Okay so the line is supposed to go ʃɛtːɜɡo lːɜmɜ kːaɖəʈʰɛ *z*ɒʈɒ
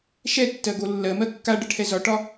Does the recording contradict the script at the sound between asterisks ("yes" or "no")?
no